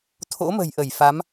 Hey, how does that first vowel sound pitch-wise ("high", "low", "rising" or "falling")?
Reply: rising